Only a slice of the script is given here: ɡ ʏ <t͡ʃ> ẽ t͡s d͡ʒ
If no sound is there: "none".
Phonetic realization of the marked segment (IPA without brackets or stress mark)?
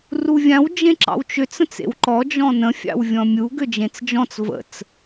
d͡ʒ